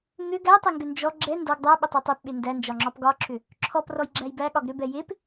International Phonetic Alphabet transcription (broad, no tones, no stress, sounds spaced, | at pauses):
ŋ ʏ ɡ æ tˤ e ŋ ɡ ʏ n d͡ʒ ɔ ɡ͡ǁ ɛ n d ɔ ɡ dˤ æ ɓ ə tˤ ɛ tˤ e p ɓ e n d æ n d͡ʒ ɒ ŋ͡ǁ ɒ p ɡ ɒ ǁ ʏ | ǁʰ ɔ p r ɔ j ɡ͡ǁ æ j b æ ɠ ɒ ɡ ɾ ʏ b ɛ j e p